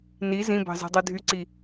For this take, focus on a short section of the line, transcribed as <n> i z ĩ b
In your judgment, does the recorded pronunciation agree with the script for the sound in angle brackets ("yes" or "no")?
yes